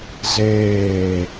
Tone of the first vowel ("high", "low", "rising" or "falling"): falling